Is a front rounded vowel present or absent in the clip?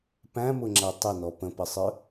absent